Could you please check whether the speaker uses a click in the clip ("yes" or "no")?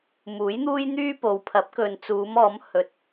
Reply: no